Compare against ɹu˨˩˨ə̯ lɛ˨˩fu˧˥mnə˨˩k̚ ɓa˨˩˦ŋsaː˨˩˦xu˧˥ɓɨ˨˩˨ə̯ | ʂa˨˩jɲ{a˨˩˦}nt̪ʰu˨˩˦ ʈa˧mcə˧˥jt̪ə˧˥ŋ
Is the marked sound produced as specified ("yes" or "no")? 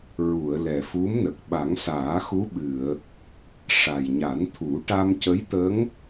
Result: yes